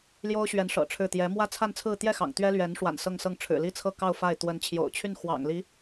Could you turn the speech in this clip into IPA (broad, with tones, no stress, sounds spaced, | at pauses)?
l j o˥ ʊ̯ ɕ ɥ ɛ˧˥ n ʂ ɤ̰˨˩ ʈ͡ʂʰ ɻ̩˥˩ t̪ j ɛ˧˥ m w ä˥ t͡sʰ a˥˧ n t͡sʰ ɹ̩˥˧ t̪ j ɛ˥˩ x ɑ̰˨˩ ŋ t̪ ɥ ɛ˥ l ɥ ɛ˧˥ n ʂ w a̰˨˩ n s ɤ˥˧ ŋ s ɤ˥˩ ŋ ʈ͡ʂʰ ɻ̩˨˩ l i˥˧ t͡sʰ ɤ˥˧ k ɑ˥˧ ʊ̯ f a˥˩ ɪ̯ t̪ w ə˧˥ n t͡ɕʰ j o̰˨˩ ʊ̯ t͡ɕʰ y˥˩ n x w ɑ̰˨˩ ŋ l i˧˥